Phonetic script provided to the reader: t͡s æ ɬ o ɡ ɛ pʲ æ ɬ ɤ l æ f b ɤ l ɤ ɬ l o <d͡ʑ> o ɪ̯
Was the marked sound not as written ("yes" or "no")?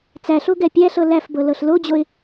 no